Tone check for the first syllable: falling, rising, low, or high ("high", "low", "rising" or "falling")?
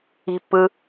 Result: high